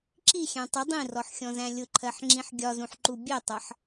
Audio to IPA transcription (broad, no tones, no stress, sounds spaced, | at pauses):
ǁ i xʲ æ̃ tˤ ɪ dˤ ĩ r ɔ ħ xʲ ɔ̃ z æ̃ lʲ ʊ ǃʰ ɜ ħ ŋ͡ǁ ĩ ħ ɡʲ ɒ z ũ ħ ǃ u bʲ ɛ tˤ ʌ ħ